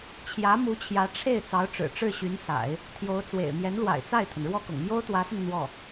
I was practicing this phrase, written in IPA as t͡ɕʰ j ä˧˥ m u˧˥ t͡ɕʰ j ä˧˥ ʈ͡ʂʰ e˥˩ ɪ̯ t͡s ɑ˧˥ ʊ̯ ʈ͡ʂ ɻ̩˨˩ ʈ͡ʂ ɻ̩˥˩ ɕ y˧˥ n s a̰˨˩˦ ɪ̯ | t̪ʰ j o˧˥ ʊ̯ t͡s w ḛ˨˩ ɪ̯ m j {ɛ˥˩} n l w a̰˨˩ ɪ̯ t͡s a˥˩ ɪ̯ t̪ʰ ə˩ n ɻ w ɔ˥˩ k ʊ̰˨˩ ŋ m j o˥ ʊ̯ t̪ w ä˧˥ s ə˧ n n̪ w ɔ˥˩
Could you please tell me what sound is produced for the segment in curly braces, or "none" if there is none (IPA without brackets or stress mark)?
ɛ˧˥